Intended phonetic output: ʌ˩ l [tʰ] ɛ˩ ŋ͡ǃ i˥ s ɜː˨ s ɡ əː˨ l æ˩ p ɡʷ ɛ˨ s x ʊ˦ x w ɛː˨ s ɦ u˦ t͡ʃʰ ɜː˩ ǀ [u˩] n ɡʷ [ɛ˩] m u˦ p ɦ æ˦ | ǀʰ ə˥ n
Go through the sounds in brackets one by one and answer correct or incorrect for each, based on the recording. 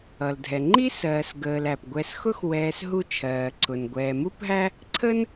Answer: incorrect: dʱ, incorrect: ʊ˩, incorrect: ɛː˩

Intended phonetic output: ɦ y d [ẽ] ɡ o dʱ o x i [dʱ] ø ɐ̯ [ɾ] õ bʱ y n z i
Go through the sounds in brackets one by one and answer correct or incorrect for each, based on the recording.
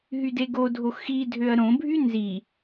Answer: incorrect: e, correct, correct

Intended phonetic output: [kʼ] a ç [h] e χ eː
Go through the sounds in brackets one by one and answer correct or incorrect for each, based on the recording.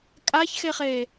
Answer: correct, incorrect: x

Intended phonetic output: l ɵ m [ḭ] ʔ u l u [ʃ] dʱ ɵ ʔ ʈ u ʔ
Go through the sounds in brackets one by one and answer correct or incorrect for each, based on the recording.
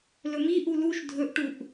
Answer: incorrect: i, correct

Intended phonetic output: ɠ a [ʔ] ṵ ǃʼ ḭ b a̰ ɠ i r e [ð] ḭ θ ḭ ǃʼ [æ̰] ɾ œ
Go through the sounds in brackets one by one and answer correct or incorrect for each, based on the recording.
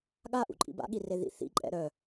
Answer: correct, correct, incorrect: ɛ̰

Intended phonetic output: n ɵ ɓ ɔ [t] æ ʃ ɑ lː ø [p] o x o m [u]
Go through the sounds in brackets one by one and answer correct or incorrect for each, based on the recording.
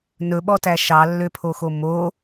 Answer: correct, incorrect: pʰ, incorrect: o

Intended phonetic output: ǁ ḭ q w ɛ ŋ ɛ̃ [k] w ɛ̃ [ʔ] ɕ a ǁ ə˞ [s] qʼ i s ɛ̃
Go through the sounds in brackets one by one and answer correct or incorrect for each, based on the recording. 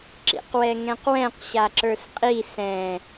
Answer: incorrect: q, incorrect: q, correct

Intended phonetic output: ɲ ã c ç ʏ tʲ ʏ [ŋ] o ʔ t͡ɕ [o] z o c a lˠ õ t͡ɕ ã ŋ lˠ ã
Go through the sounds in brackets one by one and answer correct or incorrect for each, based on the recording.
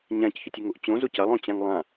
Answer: correct, incorrect: õ

